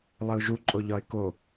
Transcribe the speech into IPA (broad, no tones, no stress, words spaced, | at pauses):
lˠɘʊ̯ʒuǃʼo ʎɒɪ̯ko